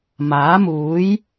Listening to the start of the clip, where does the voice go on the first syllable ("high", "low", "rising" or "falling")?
rising